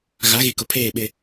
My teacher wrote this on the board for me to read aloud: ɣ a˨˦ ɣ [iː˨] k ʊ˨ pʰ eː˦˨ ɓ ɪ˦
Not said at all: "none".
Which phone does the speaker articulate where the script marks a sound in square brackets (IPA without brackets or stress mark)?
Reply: i˨